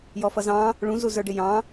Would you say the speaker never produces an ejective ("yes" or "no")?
yes